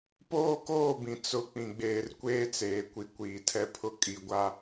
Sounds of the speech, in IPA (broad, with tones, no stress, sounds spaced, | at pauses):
p oː˦ k oː˦˨ b ĩ˨ t͡s ʊ˦˨ k͡p ĩ˨ ɡ͡b eː˨ r kʷ eː˦ t͡s eː˨ kʷ i˨ kʷ iː˨ tʰ ɛ˦ pʰ ʊ˦ kʼ i˨ ɡʷ a˦